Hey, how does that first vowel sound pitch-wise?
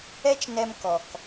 high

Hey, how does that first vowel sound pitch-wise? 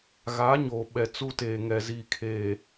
rising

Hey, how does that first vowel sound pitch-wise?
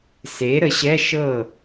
rising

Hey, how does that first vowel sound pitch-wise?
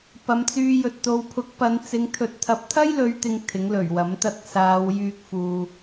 low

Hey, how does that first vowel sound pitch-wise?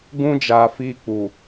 high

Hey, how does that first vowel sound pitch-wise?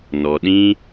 low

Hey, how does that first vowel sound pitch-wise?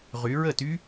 rising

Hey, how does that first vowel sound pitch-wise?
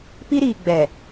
high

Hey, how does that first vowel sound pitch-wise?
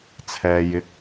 low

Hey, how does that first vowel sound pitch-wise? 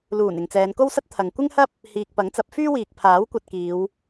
low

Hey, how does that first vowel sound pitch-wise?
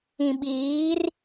low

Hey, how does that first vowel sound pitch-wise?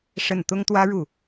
falling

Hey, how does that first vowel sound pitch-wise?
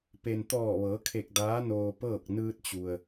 low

